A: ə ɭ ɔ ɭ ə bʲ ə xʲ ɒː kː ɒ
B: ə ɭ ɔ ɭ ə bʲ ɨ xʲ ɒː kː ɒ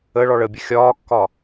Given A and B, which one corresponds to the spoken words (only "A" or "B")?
A